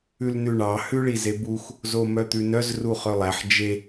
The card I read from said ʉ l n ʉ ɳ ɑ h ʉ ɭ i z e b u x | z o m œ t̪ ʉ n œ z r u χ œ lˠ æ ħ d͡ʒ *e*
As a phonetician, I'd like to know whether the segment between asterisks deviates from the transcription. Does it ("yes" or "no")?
no